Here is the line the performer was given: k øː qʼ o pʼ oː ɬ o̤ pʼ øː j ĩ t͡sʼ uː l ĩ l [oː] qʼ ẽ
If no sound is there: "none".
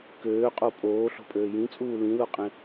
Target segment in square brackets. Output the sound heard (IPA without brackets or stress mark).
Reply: o